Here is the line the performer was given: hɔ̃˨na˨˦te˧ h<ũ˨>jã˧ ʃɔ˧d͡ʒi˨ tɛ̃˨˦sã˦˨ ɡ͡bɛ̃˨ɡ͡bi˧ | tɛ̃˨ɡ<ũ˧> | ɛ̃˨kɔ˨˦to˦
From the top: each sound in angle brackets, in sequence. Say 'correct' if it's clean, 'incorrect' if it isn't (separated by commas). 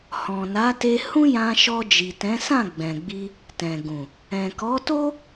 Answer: incorrect, incorrect